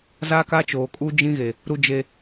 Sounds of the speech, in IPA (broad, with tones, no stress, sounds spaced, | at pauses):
z a˦ k a˦ t͡ʃ oː˨ kʼ u˦ d͡ʒ ĩ˦ ɣ e˨ | ɾ u˦ d͡ʒ e˦